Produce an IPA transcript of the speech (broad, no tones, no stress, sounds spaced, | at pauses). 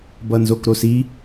b ʌ n z o k ɾ o s i